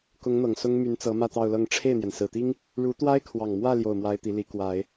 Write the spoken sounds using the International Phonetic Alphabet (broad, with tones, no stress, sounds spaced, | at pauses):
k ʊ˧˥ ŋ n̪ ɤ˨˩ ŋ s ʊ˥ ŋ m y˧˥ n t͡s ɤ˧˥ m ä˥˧ t̪ ɑ˥˧ ʊ̯ l ɤ˥˧ ŋ ʈ͡ʂʰ e˥˩ ɪ̯ n̪ j ɛ˩ n s ɹ̩˨˩ t̪ i˥ ŋ | ɻ u˧˥ t̪ w a˥ ɪ̯ kʰ w ɑ˨˩ ŋ m w ä˥˧ l j o˥˩ ʊ̯ m w a˥ ɪ̯ t̪ i˧˥ l i˧˥ k w a˨˩˦ ɪ̯